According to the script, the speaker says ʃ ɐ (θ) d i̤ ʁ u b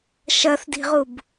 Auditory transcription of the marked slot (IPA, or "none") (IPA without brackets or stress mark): θ